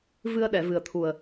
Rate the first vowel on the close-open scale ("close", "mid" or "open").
close